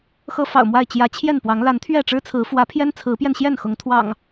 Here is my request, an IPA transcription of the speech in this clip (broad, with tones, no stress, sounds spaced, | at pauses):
x ɤ˦ f ɑ̰˨˩ ʊ̯ m w a˥˨ ɪ̯ t͡ɕ j ä˨˦ t͡ɕʰ j ɛ˥˨ n p w ɑ˨˦ ŋ l a˨˦ n t̪ʰ ɥ ɛ˥˨ ʈ͡ʂ ɻ̩˦ t͡sʰ ɹ̩˨˦ f w ä˨˦ pʰ j ɛ˦ n t͡sʰ ɹ̩˨˦ p j ɛ˧ n ɕ j ɛ˥˨ n x ʊ˨˦ ŋ t̪ʰ w ɑ̰˨˩ ŋ